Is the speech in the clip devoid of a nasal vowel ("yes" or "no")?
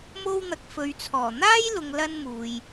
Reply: yes